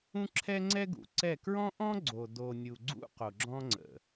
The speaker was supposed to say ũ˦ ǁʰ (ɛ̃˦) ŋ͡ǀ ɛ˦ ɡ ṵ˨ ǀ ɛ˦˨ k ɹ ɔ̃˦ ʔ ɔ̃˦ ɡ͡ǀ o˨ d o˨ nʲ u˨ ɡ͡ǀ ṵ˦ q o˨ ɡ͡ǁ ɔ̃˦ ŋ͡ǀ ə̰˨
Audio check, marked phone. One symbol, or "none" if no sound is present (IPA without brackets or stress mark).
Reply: ɛ˦